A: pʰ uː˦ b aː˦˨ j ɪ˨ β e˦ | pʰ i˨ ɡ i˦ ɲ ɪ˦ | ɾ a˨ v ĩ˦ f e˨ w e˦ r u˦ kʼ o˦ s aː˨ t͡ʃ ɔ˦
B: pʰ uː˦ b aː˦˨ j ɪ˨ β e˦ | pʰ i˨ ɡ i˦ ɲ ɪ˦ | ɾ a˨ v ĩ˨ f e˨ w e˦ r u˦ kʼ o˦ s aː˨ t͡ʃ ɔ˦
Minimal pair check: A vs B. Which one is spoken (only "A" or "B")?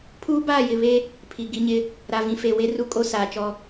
B